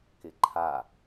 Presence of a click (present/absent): present